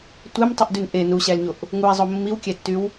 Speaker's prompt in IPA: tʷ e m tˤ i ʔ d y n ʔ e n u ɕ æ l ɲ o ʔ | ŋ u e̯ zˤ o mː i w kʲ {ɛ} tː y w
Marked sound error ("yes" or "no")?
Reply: yes